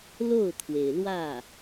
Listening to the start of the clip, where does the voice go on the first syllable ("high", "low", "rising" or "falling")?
falling